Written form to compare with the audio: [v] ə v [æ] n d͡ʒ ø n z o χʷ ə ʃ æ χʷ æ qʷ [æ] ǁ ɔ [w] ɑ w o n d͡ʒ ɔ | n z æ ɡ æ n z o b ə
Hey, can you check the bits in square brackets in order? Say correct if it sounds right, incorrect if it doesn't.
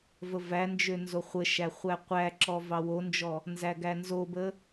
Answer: correct, correct, correct, incorrect

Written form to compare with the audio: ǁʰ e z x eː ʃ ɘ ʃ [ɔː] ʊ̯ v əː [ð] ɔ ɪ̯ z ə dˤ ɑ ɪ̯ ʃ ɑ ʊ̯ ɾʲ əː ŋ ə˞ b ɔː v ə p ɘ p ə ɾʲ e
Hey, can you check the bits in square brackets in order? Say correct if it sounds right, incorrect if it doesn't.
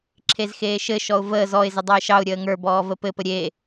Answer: incorrect, incorrect

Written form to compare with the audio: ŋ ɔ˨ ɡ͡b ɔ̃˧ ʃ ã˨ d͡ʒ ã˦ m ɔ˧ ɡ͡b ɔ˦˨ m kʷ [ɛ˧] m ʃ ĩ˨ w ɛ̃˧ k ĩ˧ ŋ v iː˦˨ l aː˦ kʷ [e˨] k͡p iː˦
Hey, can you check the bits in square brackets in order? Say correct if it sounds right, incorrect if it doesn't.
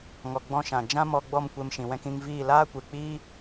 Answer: incorrect, correct

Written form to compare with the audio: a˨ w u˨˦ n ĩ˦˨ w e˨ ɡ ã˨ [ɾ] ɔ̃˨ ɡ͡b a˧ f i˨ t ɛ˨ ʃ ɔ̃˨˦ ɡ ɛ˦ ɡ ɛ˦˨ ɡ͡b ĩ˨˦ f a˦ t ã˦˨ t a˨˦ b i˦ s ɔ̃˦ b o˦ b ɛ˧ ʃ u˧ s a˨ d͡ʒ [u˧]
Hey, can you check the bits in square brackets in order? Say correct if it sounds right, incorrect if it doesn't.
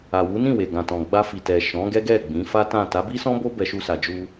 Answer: incorrect, correct

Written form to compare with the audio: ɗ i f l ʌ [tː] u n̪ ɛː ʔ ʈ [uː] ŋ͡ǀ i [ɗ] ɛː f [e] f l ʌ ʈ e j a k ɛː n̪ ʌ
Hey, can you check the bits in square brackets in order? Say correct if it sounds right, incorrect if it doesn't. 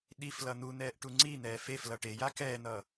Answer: incorrect, incorrect, incorrect, correct

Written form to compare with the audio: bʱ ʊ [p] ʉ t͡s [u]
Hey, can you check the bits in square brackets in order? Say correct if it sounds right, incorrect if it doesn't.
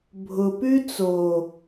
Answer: correct, incorrect

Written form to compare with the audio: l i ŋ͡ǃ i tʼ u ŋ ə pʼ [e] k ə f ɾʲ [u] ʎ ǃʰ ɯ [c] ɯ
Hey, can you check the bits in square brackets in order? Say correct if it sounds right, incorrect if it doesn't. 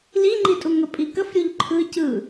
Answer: incorrect, correct, correct

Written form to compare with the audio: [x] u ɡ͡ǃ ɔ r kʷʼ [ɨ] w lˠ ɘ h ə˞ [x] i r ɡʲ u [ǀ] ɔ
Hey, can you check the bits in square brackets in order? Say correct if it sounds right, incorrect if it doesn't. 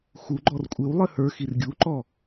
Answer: correct, correct, correct, incorrect

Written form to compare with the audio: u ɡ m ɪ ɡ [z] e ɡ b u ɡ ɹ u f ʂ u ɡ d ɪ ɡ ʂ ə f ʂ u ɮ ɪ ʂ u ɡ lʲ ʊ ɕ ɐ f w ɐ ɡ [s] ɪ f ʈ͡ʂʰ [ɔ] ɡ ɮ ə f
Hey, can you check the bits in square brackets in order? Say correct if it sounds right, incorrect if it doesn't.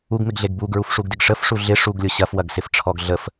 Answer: incorrect, correct, correct

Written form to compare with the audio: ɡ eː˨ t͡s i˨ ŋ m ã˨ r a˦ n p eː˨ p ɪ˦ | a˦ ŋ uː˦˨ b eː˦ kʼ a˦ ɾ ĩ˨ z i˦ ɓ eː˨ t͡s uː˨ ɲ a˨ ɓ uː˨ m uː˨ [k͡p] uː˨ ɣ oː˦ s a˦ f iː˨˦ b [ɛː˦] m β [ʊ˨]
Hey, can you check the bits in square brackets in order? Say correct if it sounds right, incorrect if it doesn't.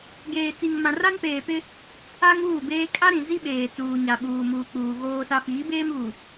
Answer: correct, incorrect, incorrect

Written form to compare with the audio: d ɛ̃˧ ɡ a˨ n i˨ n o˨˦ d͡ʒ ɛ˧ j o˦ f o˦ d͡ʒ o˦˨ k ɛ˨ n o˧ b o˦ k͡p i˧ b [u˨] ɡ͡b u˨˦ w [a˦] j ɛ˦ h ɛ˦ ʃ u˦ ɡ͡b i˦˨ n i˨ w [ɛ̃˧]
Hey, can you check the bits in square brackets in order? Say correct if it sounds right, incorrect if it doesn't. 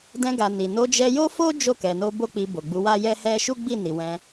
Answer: incorrect, correct, correct

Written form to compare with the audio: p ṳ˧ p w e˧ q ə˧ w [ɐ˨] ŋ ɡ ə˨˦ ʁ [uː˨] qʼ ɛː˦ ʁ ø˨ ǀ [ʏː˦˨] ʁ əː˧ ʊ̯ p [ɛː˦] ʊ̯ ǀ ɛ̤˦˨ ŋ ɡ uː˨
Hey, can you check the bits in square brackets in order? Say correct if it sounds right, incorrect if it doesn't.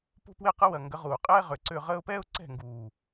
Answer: correct, correct, incorrect, correct

